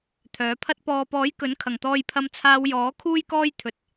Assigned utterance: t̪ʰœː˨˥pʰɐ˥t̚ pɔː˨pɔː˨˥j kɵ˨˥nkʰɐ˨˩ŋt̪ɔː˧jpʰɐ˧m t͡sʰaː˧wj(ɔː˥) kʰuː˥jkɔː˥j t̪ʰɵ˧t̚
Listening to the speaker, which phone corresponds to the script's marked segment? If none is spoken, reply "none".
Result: ɔː˨˥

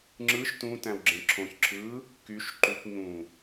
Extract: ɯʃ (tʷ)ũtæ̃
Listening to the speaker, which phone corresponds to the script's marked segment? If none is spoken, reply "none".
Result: t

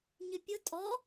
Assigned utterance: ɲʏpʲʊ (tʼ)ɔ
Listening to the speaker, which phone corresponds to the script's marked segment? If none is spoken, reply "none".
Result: tʼ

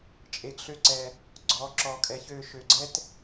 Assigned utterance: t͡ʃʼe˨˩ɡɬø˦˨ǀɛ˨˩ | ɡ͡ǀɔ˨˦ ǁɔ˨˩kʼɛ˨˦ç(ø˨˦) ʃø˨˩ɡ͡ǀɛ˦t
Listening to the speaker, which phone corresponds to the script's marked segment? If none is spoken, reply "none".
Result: ø˨˦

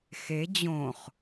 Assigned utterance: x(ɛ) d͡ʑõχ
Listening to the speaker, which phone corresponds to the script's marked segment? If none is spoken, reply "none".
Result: e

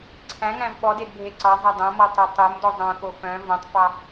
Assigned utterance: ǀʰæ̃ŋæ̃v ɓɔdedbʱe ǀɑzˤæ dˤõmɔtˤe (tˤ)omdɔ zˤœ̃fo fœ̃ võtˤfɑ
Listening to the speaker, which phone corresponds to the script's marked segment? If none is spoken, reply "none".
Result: tˤ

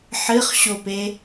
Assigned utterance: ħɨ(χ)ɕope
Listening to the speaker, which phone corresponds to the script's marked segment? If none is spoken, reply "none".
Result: χ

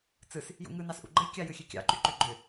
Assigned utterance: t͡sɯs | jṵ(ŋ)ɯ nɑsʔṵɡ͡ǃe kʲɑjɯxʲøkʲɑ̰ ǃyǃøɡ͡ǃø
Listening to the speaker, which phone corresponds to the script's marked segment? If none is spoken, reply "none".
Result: ŋ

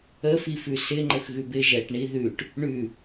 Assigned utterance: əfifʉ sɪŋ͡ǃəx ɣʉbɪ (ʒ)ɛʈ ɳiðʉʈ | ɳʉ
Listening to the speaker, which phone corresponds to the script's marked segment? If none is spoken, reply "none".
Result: ʒ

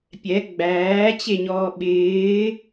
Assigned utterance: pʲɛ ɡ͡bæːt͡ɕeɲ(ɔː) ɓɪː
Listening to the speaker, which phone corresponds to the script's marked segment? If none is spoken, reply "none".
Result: ɔː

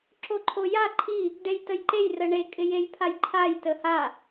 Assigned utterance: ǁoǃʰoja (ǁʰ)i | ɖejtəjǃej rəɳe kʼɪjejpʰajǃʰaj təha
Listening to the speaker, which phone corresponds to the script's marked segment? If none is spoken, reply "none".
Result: ǃʰ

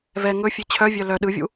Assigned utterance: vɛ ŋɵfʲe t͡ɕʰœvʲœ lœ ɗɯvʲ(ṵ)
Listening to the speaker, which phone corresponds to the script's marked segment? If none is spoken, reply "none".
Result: ṵ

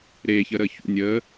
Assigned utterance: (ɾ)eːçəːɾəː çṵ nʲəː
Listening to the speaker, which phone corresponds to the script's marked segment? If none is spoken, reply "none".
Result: ɾ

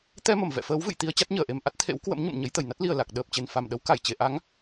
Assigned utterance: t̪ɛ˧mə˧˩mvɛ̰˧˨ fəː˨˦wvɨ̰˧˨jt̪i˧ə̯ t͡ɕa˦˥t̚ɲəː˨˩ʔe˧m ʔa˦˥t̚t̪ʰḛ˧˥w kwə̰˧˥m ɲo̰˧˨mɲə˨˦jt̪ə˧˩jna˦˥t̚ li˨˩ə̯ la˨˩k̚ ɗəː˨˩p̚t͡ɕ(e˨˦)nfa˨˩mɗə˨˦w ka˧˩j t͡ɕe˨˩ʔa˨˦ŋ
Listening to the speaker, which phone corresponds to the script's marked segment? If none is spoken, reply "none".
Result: e˨˩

